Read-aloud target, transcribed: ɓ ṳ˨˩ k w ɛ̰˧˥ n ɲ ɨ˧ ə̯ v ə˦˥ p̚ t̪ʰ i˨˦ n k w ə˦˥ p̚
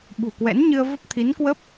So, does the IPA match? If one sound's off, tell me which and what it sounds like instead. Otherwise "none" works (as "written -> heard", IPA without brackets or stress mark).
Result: none